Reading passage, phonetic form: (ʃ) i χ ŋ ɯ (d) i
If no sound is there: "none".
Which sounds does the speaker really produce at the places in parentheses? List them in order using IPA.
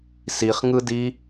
s, d

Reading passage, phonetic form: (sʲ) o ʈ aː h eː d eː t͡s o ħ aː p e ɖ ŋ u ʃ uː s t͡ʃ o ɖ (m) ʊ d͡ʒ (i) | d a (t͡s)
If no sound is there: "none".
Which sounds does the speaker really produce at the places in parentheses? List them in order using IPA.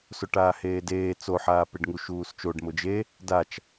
s, m, e, t͡ʃ

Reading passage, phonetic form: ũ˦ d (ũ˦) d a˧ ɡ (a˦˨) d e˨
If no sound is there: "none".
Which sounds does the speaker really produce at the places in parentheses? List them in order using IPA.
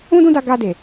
ũ˦, a˧

